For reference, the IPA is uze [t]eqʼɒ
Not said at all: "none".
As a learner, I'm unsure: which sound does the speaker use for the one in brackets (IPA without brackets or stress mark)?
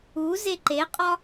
ǃ